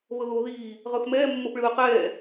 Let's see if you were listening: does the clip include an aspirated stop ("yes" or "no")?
no